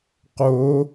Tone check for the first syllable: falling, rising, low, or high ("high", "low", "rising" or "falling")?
rising